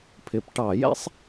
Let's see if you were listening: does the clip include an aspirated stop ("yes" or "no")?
yes